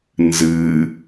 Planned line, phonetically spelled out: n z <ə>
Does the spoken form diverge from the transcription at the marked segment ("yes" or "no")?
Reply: yes